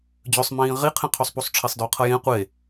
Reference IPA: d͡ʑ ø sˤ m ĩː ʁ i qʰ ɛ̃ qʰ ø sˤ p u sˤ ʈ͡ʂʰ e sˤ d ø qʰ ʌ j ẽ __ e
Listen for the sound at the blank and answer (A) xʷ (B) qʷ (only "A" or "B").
B